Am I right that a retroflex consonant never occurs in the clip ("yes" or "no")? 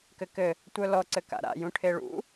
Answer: no